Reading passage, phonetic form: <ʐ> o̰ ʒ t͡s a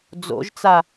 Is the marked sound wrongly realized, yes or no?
yes